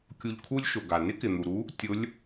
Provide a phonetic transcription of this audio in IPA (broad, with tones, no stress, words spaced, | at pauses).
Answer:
kʲu˧ʎkʰu˥lʲʃʊ˩ɡa˩ nɪ˥kɪ˩n̪u˩ ɾu˧˥ | tʲʊ˧˥lʲ